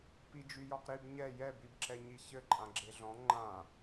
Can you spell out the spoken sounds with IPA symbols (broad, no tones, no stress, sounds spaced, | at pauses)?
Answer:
p i d͡ʒ y j ɔ q ɾ i b ɲ ɛ j ɛ b i b ǁ ɛ ɲ i ç ɘ ǃʼ ã ɡ͡ǁ e ɮ ɔ̃ ŋ͡ǃ ã